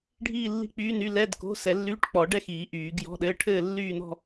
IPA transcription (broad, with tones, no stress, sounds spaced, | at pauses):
ɖʱ iː˥˧ lː i̤˥˧ k͡p yː˧˥˧ n y˧˥˧ l ɛ˧˥˧ d k o̤˧˥˧ s ɛ˨˩˦ lː yː˧˥˧ ʈ k͡p ɔ˨˩˦ ɖ ɛ˥˧ x iː˨˩˦ ʔ yː˨˩˦ ɡ j ɔ̤˧˥˧ ɗ ɘː˧˥˧ ʈʰ ɘː˥˧ lː yː˥˧ n ɔ̤˥˧